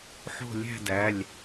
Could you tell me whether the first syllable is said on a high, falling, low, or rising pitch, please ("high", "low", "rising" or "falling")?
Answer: falling